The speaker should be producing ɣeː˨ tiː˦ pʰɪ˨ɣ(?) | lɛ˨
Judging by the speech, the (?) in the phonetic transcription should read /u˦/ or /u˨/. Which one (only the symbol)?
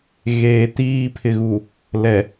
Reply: u˨